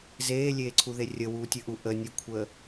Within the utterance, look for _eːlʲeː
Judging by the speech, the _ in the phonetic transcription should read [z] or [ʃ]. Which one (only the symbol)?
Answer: z